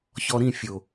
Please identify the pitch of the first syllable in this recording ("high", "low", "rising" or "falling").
low